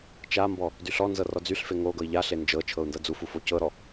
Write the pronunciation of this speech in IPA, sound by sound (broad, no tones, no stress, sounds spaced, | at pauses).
t͡ʃ a m b ɔ | d y ɬ ɔ n z ɤ r ɔ d͡z y ɬ f e ŋ o ɡ ɤ i̯ ʎ a ɬ e n d͡ʒ ɤ t͡ʃʰ ɤ u̯ n d ɤ d͡z u f u f o c ɤ ɾ ɔ